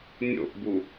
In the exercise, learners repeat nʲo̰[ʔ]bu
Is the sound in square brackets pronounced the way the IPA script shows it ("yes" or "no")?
yes